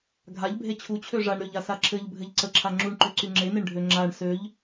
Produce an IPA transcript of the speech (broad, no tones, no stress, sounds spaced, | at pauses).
ɡʱ a ʎ bʱ e t͡ɕʰ u t͡ɕʰ ø ʐ a ɳ ɾ ø ʎ a s a ǁʰ ɘ ʎ bʱ ɘ ʎ ǀ ə ǁʰ a ŋ͡ǁ u ɳ ǃ ø ǀ y ŋ͡ǁ e n e ɳ ɖʱ ø ŋ͡ǁ a ɳ s ø ʎ